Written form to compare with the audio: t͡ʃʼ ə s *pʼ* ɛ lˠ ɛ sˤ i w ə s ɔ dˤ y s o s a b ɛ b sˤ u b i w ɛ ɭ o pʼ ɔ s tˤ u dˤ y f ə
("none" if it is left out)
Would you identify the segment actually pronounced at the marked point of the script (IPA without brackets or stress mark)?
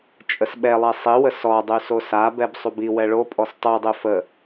ɓ